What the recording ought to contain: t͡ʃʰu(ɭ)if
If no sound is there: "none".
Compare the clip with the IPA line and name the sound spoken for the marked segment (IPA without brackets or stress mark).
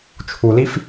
l